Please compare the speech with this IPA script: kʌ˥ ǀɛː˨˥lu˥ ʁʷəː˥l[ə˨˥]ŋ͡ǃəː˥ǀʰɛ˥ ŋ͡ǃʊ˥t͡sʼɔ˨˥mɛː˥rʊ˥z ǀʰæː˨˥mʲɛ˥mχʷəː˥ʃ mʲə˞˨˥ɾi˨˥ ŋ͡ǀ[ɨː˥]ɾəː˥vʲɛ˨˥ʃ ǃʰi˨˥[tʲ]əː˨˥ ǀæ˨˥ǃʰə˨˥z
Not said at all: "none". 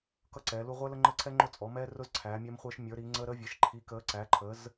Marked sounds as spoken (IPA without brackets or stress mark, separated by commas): ə˥, əː˥, k